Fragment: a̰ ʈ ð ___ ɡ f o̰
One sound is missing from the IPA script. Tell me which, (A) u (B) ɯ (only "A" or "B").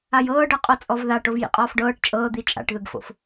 B